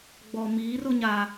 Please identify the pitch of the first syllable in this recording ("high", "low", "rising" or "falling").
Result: low